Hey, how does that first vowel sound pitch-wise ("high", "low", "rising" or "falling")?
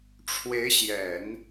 rising